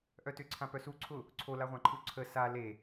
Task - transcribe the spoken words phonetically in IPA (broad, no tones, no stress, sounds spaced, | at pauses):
ʔ œ t ʏ ǀʰ ã p œ s u ǀʰ ʊ | ǀʰ o l a ʁʷ ã ǃʰ u ǀʰ ə s a l e